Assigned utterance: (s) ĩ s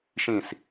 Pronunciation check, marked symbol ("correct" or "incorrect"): incorrect